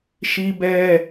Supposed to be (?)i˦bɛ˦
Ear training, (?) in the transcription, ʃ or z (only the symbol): ʃ